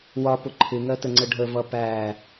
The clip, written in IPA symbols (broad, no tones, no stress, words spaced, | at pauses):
wɒpʊ ǃʰɪŋɜtəŋ͡ǀə ɖʱəvʌ pæ